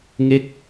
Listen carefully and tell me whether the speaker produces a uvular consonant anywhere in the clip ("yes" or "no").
no